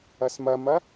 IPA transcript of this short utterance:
ɐsmɐmɐ

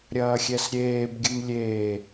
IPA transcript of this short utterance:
ɾʲɐːxʲɛsɾʲeːbɡʲɨm lʲeː

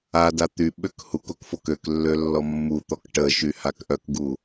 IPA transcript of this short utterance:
ada t̪yɓøk hukok fokøklːø lːɔmːut̪ɔk ʈəʃy hakʔœkɡu

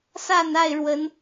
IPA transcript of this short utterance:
sa˥˨na˥˨ɪ̯ɻwə˨˦n

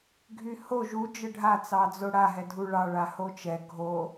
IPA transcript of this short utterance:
ɡʱyho ʒu d͡ʒəɖʱa t͡sɑd͡zoɽa ɦɛdʱuɭɑ ɭahot͡ʃɛ ɡʱo

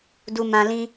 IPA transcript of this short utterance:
du˧mã˧lĩ˦

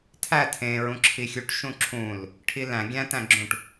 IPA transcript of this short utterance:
tʰæ tʰẽ ɹũǁʰixʲuʈ ʃũǁʰũl | ʈʰilæ̃ ɡʲæ̃tæ̃ɡ͡ǁũʈ

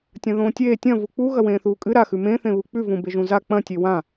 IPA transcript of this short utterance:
tʲɐ̃ðõːtʲeː tʲɐ̃ vuk͡pu ɣɐwẽːθuːkʼɨ ɾaxʉ mẽθẽ βuk͡pʉvũ beʒũza k͡pɐ̃ tʲewã

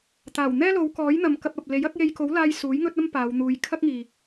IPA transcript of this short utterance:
t̪aː˨˩w n̪ɛː˥lo˨˧wkɔː˨˥jn̪ɐ˨m kɐ˧p̚ɐ˨p̚ le˨˥j ɐ˨˥k̚je˧jko˨˥wlaː˧j suː˨˥jŋɵ˥t̚ɐ˥m paː˨˧wn̪uː˨˧j kʰɐ˥k̚ŋiː˨

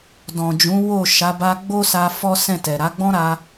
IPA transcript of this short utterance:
dɔ̃˨d͡ʒũ˨˦ wo˦˨ ʃa˨˦ba˧ɡ͡bo˦sa˧ fɔ˦ sɛ̃˦˨tɛ˨ ɾa˨˦ɡ͡bɔ̃˦ɾa˧

